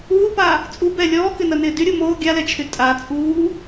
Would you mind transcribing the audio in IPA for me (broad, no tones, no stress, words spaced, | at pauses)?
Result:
uːpaː | t͡sʼubɛ lʲɔːkɪnɐnɪː dyɾʲu moː ɡʲalɛt͡ʃʰy tʼa t͡sʼuː